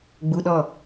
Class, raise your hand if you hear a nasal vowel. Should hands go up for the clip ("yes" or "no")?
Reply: no